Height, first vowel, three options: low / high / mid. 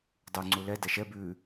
high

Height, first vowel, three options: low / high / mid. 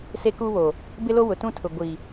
mid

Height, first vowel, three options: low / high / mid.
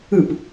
high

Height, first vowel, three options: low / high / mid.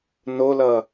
mid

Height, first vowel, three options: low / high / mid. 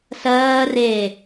mid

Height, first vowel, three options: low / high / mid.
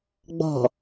mid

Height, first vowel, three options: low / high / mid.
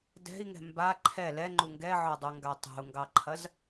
mid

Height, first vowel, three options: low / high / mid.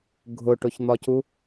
high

